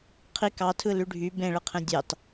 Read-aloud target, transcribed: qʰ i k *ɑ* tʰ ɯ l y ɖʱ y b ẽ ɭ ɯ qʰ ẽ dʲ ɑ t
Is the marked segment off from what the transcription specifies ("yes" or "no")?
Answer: no